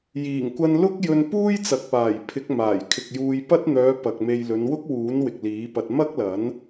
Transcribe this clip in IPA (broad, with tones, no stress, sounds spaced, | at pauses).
j iː˨˩ ŋ kʷ ɐ˧ n l ʊ˥ k̚ j ɵ˧ n p uː˥ j t͡s ɐ˨ k̚ p aː˨˩ j pʰ ɪ˨˥ k̚ m aː˨˩ j kʰ ɪ˨ k̚ j uː˧ j p ɐ˥ t̚ n̪ œː˨˧ p ɐ˨ k̚ m e˧ j l ɵ˨˧ n w ʊ˥ k̚ w uː˨˥ n w ɪ˨ k̚ l iː˨˥ p ɐ˧ t̚ m ɐ˥ k̚ l ɐ˨˥ n